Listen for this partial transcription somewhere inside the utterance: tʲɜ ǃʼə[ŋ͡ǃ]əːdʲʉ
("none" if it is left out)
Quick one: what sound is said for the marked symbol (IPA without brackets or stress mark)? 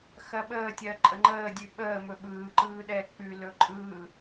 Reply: ŋ͡ǃ